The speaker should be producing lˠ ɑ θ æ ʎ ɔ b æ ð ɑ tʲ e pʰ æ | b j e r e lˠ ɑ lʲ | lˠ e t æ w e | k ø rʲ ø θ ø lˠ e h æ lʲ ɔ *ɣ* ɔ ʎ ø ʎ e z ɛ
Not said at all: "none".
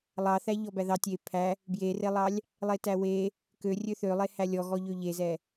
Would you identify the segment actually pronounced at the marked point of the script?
ɣ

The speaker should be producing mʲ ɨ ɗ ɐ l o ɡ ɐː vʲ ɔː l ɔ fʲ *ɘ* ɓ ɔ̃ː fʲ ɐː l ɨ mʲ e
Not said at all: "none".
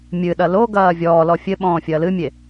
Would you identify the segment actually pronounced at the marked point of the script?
ɘ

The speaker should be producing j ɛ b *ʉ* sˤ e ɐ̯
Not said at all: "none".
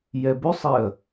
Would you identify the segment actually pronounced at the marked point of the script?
ʉ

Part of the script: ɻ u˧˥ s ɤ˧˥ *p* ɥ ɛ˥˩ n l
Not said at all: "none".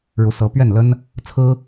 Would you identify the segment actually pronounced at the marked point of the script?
p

